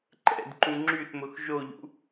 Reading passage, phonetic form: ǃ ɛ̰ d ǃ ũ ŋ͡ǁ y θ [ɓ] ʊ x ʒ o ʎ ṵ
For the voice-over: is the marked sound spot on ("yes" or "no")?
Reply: no